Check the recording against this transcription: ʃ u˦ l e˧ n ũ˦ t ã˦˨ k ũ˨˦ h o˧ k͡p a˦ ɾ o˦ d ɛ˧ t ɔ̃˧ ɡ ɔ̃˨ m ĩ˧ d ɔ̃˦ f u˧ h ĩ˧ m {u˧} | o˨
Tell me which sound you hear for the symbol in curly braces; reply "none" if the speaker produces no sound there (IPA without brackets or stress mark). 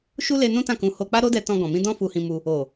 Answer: u˧